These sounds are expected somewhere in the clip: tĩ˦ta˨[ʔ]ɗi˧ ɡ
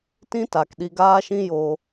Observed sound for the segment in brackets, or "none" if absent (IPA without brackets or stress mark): k